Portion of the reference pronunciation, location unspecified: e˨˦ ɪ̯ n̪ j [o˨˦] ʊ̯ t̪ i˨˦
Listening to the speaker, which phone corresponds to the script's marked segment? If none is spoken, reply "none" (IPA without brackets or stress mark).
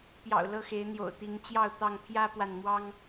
o̰˨˩